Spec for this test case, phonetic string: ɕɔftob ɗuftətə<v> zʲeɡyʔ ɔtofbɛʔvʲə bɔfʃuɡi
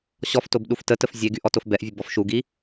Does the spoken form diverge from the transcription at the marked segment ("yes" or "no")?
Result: yes